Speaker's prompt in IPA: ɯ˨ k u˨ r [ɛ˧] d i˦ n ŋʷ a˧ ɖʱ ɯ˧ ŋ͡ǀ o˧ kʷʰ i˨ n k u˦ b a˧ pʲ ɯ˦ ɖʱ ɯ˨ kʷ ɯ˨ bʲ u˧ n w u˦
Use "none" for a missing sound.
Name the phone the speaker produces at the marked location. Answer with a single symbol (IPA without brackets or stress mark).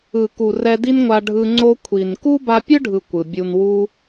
ɛ˧